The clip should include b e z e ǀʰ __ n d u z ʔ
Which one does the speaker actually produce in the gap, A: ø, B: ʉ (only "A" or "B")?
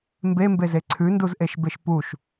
B